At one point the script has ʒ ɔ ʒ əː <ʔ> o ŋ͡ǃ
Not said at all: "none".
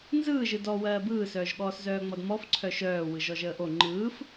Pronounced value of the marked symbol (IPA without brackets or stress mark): ʔ